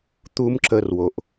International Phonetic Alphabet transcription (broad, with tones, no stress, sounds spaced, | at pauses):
t̪ u˦ m ǁ ə˧ r w o˨ ʔ